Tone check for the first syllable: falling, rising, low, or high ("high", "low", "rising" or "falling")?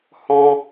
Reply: high